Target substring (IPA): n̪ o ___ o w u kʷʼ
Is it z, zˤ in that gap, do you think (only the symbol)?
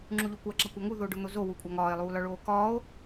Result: z